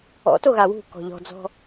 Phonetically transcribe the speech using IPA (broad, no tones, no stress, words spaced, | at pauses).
ɔ̰to ɣawṳkɔ̤ ʎɔ̤d͡zɔ̤